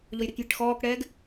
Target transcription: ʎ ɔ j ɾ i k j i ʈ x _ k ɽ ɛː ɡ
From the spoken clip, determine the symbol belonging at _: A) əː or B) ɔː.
B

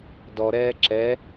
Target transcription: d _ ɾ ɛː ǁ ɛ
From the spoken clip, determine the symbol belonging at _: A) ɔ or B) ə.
A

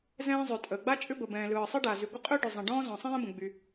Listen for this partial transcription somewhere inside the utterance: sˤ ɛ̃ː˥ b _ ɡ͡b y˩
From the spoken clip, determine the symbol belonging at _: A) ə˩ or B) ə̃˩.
B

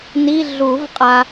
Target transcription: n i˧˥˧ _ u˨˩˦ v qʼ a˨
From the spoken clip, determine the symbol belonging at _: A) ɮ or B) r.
A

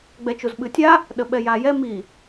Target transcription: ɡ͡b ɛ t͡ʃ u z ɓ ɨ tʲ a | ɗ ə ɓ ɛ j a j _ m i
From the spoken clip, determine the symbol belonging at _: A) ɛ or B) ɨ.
A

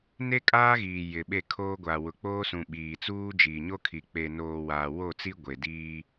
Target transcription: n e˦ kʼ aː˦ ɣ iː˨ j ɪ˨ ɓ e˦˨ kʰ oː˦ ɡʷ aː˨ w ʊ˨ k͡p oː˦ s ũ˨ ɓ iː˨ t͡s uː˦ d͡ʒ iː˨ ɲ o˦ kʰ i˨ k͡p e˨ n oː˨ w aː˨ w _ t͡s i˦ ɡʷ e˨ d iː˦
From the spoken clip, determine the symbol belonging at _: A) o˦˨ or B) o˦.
A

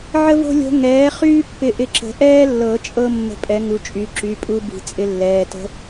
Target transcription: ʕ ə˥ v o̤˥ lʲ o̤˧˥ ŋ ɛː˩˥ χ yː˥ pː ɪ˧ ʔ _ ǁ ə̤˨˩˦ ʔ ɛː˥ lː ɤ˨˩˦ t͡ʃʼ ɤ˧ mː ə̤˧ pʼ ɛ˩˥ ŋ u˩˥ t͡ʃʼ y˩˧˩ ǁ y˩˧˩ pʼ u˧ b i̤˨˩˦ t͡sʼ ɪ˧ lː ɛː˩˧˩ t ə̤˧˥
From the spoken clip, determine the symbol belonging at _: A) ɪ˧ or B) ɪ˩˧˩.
A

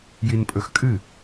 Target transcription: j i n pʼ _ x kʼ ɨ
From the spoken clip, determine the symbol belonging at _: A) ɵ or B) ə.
A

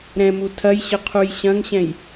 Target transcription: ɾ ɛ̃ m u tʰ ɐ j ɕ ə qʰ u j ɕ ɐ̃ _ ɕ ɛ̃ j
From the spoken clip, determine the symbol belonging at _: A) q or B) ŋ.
B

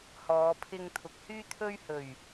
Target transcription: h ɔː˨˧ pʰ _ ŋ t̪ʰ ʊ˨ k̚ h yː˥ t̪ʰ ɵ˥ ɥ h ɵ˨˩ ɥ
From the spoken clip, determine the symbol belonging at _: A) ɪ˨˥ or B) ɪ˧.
B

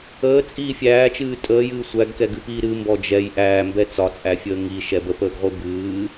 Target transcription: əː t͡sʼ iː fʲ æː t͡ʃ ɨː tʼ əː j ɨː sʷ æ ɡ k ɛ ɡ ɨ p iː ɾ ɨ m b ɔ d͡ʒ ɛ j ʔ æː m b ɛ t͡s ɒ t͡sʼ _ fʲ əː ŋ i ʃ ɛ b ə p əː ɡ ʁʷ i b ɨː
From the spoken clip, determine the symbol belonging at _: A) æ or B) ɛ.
A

